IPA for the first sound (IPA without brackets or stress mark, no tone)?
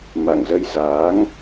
m